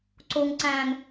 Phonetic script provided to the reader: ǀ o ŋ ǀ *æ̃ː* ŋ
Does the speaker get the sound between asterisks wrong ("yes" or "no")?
no